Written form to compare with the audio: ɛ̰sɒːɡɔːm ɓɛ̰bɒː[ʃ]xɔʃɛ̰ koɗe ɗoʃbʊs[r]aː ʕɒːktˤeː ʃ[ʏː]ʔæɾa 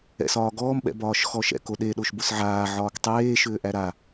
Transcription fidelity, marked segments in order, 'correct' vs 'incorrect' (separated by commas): correct, incorrect, correct